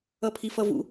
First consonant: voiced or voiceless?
voiceless